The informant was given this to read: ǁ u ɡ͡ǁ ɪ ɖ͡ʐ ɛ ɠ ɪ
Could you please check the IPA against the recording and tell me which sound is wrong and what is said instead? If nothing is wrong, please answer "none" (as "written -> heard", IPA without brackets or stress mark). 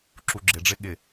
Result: ɛ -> ɪ